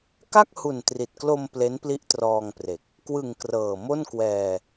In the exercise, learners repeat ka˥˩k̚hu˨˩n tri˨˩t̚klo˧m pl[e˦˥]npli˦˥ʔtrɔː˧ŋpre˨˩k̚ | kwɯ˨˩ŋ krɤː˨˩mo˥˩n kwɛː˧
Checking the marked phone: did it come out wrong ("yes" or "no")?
no